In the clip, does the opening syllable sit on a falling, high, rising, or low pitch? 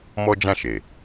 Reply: high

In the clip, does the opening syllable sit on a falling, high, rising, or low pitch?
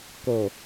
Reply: low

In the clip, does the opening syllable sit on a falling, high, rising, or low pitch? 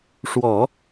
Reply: low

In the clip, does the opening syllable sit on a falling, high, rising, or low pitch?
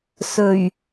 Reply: low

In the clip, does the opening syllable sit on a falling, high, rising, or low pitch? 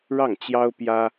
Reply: falling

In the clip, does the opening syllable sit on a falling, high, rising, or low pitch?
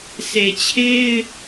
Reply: low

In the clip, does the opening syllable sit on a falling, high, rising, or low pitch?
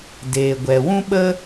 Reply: low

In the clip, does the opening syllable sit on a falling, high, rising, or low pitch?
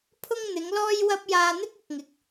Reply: high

